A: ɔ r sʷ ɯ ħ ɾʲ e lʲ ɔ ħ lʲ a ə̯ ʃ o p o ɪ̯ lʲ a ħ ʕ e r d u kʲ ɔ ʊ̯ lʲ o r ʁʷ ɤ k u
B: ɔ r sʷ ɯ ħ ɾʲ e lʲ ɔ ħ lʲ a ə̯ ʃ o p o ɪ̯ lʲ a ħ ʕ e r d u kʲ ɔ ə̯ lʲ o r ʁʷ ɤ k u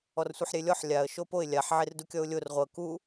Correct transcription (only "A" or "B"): A